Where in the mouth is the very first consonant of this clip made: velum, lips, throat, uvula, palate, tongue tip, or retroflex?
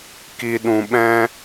velum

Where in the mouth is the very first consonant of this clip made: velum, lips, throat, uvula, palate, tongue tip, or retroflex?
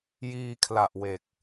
palate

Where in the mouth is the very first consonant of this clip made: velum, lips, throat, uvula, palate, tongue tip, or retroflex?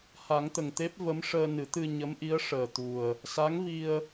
throat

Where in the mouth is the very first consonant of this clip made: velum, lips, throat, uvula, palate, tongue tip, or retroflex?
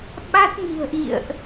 lips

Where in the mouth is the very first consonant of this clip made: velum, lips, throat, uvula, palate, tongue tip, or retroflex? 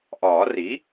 throat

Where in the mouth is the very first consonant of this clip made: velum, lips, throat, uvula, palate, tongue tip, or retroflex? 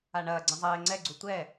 retroflex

